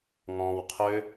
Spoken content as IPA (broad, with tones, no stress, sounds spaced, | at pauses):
ŋ ɔ̃ː˨ w qʰ ø˧